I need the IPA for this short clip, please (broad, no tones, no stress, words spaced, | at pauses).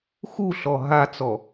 xuɬɔ ɦat͡sɔ